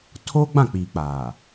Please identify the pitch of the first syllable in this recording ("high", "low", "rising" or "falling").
high